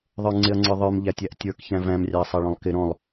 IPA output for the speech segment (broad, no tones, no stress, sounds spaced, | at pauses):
ðˤ ə˞ ŋ͡ǀ ɪ ɐ̯ ŋ͡ǀ ə˞ ðˤ ə˞ m ʎ æ tʲ æ ʔ tʲ ə˞ k ç æ̃ v æ̃ m rʲ ɑ ɐ̯ sˤ ɑ ɭ ɔ̃ lˠ k ɪ ɾ ɔ̃ lˠ